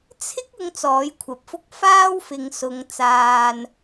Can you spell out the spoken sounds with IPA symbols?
t͡sʰ ɪ˥ k̚ ʊ˨˧ ŋ t͡s ɔː˨˥ j kʷʰ ɐ˨ p̚ f ʊ˥ k̚ f aː˥ w f ɪ˨˧ ŋ s ʊ˨˧ ŋ t͡s aː˧ n

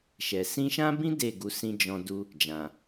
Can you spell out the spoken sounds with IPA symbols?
ʃ ɛ˨ s ĩ˧ ʃ ã˦ b ĩ˦ d e˦˨ ɡ u˨˦ s ĩ˦ d͡ʒ ɔ̃˧ d u˦ | d͡ʒ ã˨

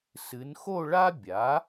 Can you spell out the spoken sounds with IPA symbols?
s ɨ˩˧ n x o˥˧ ɭ a˥ bʲ a˩˥

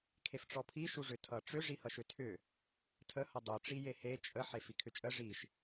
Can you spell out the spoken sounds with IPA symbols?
kʰ e f ʈ͡ʂ ɔ pʰ i ʃ u ʐ ʏ tʰ ʌ ʈ͡ʂ ʏ ʐ i h ʌ ʃ ʏ tʰ ʏ | tʰ ə h ʌ dˤ u ʈ͡ʂ i j e h e t͡ʃʼ ə ħ e f i kʰ ʏ t͡ʃʼ ə ʐ i ʃ

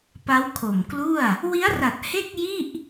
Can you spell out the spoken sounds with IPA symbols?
p a˦˥ w kʰ o˨˩ m k l u˥˩ a̯ | w i˦˥ a̯ r a˨˩ t̚ h e˥˩ k̚ j i˥˩ ʔ

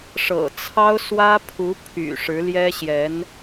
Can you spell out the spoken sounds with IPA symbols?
ʂ ɤ̰˨˩ t͡sʰ ɑ˥ ʊ̯ s w ä˥ pʰ u˧˥ pʰ y̰˨˩ ʂ ɻ̩˧˥ l j ɛ˥ ɕ j ɛ˧˥ n

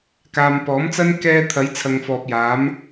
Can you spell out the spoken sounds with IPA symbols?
k aː˨ m p ɔː˨˥ m t͡s ɐ˥ n k ɛː˧ t̪ʰ ɐ˨˥ j t͡sʰ ɐ˨ ŋ f ɔː˨ p̚ j aː˨˥ m

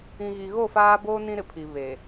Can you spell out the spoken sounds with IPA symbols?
ĩ˨ ɣ i˨ ɣ o˦˨ f aː˦ b oː˦ n ĩ˦ ɾ ɪ˨ pʰ i˨ β e˨

